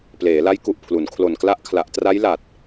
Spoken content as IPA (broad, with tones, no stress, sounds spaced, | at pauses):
p l eː˩˦ l a˦˥ j k u˨˩ ʔ pʰ l u˩˦ n kʰ l o˨˩ n k l a˦˥ ʔ kʰ l a˨˩ ʔ t r a˦˥ j l a˨˩ t̚